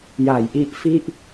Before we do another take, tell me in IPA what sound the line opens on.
j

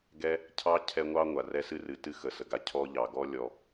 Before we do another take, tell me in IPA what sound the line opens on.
ɡ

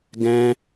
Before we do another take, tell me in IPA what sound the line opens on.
ɡ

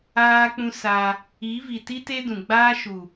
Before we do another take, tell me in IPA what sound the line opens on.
aː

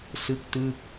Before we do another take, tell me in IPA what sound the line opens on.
s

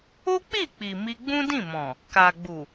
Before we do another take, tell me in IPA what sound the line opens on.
o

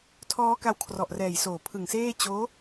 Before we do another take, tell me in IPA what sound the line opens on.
tʰ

